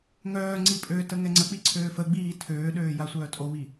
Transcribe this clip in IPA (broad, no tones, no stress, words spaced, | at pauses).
ŋœːŋ͡ǀi pʼøtə ŋɛŋ͡ǀək͡pi ǀʰøːfəɡ͡biː tʰøːɗøː jasʷœːtʼoβi